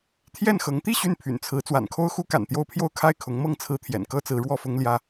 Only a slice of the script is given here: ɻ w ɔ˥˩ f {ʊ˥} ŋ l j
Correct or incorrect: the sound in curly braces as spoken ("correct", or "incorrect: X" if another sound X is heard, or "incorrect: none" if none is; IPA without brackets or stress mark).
correct